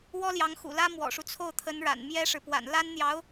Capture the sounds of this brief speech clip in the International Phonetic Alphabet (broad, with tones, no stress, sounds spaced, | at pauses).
w ɔ˥ l j ɑ˧˥ ŋ x ṵ˨˩ l ä˥ m w ɔ̰˨˩ ʂ u˦ t͡sʰ o˥˩ ʊ̯ t̪ʰ ə˧˥ n ɻ a̰˨˩ n m j ɛ˥ ʂ ɻ̩˨ p w a̰˨˩ n l a˥ n n̪ j ɑ˧˥ ʊ̯